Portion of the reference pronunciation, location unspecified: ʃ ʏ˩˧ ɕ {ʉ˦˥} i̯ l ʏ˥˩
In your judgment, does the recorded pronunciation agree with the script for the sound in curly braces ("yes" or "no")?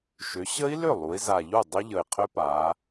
no